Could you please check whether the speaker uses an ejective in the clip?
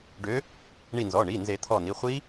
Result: no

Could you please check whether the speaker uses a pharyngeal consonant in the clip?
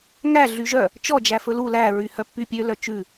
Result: no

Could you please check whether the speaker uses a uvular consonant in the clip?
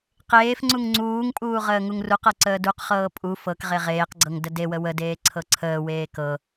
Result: yes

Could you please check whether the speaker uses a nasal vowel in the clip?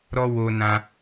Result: yes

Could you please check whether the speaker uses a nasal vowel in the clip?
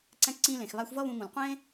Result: yes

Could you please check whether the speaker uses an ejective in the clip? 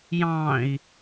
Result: no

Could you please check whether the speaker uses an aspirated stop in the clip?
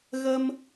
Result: no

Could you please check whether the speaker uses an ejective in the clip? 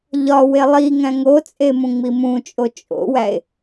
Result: yes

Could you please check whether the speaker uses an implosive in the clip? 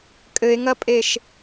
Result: no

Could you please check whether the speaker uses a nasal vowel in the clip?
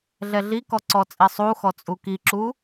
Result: no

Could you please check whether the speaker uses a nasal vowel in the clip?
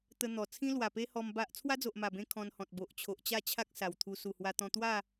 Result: yes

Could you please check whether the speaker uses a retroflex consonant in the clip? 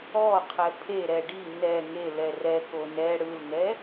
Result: yes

